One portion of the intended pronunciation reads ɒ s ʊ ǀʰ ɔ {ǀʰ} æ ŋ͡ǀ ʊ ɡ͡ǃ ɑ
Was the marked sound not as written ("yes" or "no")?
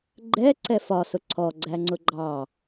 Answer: yes